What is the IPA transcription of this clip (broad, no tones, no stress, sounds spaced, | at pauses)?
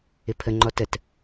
ɪ pʰ ə ŋ͡ǃ ɔ t ə t